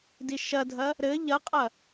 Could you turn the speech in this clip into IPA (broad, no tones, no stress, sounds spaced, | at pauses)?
d i ʃ ɐ dʱ ɐ | ɾ ɘ ʎ ɐ qʼ ɐ